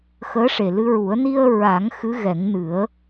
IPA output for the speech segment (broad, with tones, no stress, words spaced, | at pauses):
xəː˧˥ʂe˨˩lɨ˧ɹu˨˩˦ə̯ ni˧ə̯ɹa˨˩˦ŋ xɨ˧˥ɣɛ˨˩˦ŋnɨ˨˩˦ə̯